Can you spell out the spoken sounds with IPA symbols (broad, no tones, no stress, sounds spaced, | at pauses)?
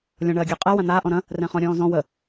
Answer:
lʲ ɔ̃ ɳ ɜ ɡʲ əː qʼ ɜ w ã n̪ aː ʔ ɔ̃ ɾ ɐ̃ | r ɛ̃ χ ɔ̃ ɾʲ ɔ̃ː z ɔ̃ w ə